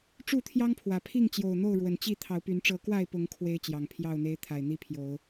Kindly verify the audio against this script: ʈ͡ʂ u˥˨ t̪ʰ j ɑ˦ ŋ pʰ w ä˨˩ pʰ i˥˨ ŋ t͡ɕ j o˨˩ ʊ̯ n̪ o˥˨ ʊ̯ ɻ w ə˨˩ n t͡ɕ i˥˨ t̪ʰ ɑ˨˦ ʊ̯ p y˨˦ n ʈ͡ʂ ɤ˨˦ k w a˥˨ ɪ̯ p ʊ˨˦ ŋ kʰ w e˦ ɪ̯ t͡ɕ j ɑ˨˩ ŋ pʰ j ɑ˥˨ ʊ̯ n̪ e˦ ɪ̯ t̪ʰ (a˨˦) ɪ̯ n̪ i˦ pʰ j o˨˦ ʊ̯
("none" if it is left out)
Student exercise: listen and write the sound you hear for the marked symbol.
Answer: a˨˩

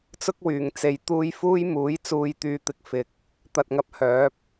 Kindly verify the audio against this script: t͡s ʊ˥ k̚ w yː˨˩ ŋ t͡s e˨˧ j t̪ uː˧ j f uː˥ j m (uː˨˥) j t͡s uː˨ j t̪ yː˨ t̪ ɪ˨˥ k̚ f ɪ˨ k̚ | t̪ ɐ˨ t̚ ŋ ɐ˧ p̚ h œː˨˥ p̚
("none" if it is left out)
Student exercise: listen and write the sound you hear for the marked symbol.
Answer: uː˨˥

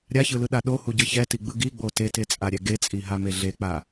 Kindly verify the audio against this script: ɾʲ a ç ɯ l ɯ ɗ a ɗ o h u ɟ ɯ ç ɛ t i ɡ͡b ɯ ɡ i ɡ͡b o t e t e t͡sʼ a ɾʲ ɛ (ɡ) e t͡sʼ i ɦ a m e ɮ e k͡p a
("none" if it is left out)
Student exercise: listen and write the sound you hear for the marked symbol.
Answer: ɡ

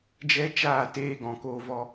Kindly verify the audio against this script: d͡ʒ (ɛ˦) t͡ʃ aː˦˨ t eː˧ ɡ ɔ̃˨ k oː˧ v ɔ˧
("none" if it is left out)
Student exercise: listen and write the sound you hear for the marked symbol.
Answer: ɛ˦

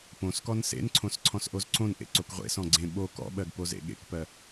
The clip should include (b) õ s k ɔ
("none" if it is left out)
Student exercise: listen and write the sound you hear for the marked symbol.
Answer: p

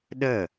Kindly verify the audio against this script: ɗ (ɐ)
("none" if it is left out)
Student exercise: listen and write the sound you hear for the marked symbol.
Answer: ə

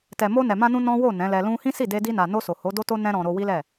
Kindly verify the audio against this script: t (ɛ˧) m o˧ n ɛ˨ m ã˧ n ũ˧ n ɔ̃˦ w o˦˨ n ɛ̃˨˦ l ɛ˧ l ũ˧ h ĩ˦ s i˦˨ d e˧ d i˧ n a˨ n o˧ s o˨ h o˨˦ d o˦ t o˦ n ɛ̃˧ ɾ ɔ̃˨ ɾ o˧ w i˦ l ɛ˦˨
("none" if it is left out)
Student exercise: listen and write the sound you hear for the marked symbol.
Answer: ɛ˨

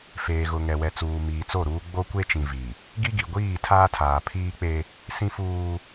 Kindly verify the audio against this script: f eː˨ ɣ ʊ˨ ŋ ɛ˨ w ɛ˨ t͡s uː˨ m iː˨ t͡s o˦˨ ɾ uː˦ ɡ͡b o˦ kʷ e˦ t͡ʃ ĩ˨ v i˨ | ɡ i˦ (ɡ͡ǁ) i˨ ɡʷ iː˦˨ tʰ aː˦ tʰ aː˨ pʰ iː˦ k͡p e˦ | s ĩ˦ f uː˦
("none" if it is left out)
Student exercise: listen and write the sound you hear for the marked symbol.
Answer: ɡ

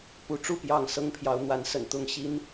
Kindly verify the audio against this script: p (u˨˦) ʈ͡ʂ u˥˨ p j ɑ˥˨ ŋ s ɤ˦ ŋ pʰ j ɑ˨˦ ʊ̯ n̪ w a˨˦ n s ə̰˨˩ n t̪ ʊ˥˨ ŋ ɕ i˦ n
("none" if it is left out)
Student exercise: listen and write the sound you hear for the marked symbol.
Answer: u˨˦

